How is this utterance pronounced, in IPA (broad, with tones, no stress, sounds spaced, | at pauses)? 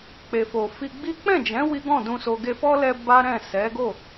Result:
k͡p e˨ f o˨ f i˧ ɡ͡b i˦ k͡p ɛ̃˦˨ d͡ʒ ɛ̃˨˦ w i˦ ɡ ɔ̃˦˨ d ũ˧ s o˧ ɡ e˧ f ɔ˦ l ɛ˧ b a˦ ɾ ɛ̃˦˨ s ɛ˨˦ ɡ o˦˨